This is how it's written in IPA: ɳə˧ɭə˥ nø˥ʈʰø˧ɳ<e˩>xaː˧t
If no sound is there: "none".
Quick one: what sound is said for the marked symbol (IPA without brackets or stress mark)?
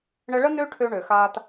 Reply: ø˩